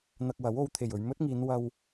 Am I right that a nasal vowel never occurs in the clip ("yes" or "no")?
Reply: yes